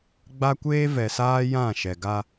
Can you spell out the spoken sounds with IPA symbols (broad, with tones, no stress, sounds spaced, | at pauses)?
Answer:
ɡ͡b a˦ kʷ eː˦ v ɛ˨ s aː˦ j ã˦˨ ʃ ɛ˨ ɡ a˦